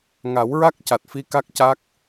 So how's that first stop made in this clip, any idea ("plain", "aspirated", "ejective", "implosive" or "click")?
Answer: plain